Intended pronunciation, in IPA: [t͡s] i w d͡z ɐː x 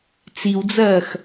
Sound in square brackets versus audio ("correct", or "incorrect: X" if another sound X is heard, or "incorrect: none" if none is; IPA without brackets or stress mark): correct